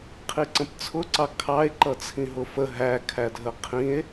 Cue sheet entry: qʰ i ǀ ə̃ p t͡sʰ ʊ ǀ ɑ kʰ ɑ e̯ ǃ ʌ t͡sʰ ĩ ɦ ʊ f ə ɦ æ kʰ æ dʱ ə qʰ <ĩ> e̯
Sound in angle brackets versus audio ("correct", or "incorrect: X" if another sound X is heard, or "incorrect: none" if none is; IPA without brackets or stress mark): correct